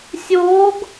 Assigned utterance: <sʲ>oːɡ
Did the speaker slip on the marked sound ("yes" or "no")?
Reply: no